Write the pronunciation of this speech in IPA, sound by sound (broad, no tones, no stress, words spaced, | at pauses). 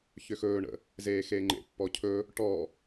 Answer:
çʏxɵːɳə̰ | zeːxeːŋ͡ǃḛpːɔ cʰɵ | ʈɔ